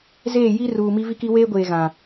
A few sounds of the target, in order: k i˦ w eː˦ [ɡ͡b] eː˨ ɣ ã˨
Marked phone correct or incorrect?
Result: incorrect